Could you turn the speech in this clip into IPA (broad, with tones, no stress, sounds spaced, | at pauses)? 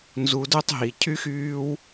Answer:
n z u˧ d œ˦ tˤ ɦ i˨ cʰ y˦ x yː˦ w